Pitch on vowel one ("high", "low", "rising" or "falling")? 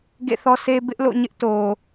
falling